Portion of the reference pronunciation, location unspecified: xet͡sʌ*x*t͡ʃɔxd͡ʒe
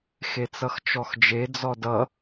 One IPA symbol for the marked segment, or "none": x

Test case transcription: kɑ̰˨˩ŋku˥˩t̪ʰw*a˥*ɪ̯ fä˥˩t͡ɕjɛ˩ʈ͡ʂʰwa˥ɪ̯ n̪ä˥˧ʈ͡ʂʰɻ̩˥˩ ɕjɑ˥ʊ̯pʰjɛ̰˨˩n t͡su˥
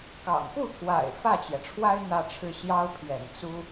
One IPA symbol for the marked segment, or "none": a̰˨˩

